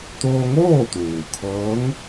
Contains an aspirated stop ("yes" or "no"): yes